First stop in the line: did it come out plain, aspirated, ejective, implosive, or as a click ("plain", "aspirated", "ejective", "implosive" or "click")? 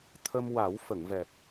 aspirated